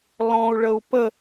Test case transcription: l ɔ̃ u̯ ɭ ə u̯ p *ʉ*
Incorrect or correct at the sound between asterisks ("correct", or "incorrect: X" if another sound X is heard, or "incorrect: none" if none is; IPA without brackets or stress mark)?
incorrect: ə